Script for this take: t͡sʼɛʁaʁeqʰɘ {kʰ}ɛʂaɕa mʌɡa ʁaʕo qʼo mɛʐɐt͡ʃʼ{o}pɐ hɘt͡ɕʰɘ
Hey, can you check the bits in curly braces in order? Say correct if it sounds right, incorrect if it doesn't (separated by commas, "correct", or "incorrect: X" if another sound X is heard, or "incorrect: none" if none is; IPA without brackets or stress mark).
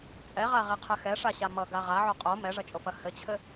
incorrect: x, correct